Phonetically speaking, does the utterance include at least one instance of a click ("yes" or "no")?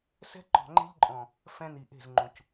yes